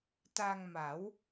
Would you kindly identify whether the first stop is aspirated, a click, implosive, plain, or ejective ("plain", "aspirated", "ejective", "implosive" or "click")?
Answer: plain